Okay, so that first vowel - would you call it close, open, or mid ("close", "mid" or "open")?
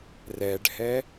mid